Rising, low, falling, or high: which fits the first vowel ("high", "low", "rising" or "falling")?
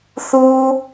low